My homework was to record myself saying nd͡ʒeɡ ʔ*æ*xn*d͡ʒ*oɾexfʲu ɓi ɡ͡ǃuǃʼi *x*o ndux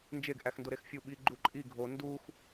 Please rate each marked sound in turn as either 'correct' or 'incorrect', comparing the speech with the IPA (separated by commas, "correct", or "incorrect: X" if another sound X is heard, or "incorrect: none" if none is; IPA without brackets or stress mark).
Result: correct, incorrect: d, incorrect: ɡʱ